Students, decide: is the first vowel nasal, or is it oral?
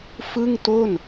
oral